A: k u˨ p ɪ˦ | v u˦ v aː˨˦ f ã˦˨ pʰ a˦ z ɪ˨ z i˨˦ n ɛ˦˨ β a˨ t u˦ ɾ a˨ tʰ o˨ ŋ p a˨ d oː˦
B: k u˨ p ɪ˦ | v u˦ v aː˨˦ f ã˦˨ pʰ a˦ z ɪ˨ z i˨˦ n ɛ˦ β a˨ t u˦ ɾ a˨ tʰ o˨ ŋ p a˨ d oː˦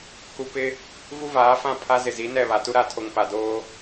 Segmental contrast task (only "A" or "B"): A